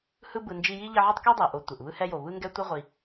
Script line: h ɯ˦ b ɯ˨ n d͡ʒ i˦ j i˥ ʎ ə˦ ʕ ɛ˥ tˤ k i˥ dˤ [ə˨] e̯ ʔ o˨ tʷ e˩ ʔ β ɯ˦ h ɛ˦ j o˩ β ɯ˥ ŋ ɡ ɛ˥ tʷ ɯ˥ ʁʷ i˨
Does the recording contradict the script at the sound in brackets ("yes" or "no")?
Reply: yes